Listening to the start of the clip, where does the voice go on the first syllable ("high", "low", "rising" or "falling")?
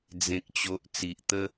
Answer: high